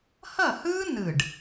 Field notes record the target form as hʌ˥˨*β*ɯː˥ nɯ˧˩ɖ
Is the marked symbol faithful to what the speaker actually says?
no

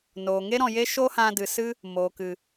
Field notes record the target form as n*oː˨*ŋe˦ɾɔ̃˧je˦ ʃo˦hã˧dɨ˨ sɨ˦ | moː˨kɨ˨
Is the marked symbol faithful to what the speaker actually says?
yes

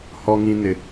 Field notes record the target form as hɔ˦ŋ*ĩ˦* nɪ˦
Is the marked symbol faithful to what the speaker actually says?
yes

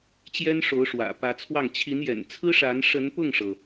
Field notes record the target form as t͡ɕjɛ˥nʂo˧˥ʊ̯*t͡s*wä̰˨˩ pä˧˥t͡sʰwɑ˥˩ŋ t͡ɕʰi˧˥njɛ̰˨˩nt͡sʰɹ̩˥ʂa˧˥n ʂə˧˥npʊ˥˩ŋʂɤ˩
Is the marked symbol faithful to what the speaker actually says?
no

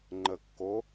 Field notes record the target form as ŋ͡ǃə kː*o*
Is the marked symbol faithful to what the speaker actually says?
yes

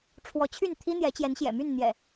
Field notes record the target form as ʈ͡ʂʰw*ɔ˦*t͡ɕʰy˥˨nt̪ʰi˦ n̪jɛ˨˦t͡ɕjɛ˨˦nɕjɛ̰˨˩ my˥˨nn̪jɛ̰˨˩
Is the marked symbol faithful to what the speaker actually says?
no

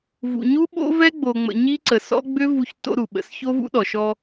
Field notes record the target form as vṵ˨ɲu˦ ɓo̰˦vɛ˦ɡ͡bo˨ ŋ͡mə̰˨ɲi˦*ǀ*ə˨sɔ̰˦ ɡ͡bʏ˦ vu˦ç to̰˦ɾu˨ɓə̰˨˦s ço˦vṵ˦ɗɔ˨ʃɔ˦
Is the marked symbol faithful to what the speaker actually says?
yes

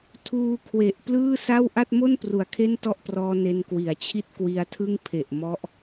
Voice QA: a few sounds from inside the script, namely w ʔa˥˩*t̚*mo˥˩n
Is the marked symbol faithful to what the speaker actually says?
yes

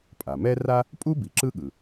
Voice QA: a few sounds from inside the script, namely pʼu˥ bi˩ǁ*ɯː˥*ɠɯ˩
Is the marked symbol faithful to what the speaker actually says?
no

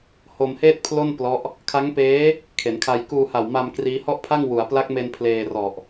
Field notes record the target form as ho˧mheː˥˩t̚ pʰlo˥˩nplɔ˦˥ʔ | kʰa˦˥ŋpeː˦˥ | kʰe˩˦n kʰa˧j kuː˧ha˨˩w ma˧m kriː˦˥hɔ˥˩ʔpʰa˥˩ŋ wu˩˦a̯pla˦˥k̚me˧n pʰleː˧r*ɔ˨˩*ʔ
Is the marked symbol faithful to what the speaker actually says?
yes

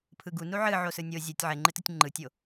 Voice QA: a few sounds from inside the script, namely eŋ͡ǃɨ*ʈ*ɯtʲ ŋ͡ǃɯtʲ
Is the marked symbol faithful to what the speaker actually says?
no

